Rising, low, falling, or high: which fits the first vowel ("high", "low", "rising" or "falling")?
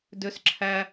high